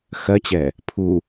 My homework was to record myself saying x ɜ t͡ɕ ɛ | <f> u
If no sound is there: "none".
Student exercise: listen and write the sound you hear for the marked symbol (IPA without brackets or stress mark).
pʰ